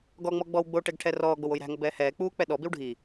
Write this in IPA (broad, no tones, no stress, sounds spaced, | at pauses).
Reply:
ɡ ɔ ŋ͡m ɔ ɡ͡b ɔ w ɡ͡b o ʈ ɛ ɡ ʈʰ ɛ r ɔː ɡ͡b o w o j ɾ æ̤ ŋ ɔ b ɛː h ɛː k͡p uː k͡p ɛ ɗ ɔ b i w ɖʱ i